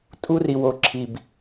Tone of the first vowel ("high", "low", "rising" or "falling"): high